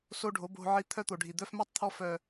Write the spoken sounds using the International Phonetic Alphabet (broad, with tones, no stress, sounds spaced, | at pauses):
s o˦ ɖʱ o˨˦ b o̤˧ ʕ i˧ t̪ʰ œ˦ t̪ o˨ ɖʱ i˨ d̪ œ˧ f m œ˦ tˤ t̪ʰ ɔ˧ f œ˨